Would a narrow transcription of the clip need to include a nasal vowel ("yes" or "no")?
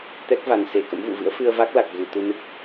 no